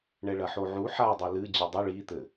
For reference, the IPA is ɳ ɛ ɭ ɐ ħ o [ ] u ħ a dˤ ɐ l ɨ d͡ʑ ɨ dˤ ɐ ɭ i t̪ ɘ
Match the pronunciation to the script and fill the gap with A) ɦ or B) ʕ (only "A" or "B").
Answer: B